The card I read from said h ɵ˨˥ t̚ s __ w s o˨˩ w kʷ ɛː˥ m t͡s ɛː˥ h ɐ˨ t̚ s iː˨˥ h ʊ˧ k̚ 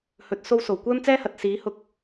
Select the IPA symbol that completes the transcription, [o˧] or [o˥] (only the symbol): o˥